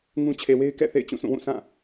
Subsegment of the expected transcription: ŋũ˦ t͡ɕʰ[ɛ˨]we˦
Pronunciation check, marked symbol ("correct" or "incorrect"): incorrect